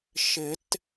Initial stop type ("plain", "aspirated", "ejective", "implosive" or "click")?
plain